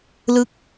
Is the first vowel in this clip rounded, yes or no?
no